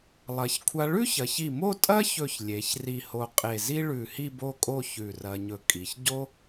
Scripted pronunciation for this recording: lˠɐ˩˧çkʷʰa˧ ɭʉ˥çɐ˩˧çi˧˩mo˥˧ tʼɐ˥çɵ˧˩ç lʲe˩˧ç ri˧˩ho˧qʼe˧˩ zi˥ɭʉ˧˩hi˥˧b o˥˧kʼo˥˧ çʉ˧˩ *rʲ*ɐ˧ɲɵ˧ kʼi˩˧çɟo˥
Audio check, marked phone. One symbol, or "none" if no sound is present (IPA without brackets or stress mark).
r